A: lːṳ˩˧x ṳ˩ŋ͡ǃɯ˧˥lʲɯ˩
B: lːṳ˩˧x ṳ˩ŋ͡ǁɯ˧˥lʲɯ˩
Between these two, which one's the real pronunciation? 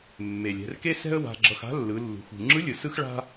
B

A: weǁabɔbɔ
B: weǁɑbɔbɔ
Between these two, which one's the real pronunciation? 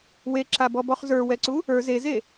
A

